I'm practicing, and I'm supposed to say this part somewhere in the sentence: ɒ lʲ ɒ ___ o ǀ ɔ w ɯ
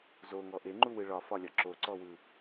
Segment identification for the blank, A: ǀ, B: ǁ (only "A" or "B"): B